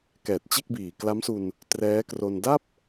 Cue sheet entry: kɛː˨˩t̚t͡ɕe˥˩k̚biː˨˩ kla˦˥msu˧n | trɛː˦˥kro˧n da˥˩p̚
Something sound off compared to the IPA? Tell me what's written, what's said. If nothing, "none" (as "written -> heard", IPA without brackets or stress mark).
none